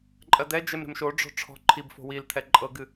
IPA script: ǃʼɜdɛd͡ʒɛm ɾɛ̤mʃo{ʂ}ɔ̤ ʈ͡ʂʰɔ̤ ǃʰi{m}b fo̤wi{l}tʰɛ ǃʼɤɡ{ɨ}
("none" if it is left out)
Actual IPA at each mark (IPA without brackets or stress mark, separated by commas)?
ɖ͡ʐ, none, l, ɨ